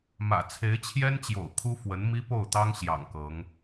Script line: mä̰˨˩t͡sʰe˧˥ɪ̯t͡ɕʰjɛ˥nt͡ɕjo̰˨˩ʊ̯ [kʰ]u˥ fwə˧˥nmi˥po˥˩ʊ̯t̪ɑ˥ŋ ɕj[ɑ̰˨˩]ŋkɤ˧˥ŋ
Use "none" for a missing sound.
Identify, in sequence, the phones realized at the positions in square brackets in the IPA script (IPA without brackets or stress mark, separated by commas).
kʰ, ɑ̰˨˩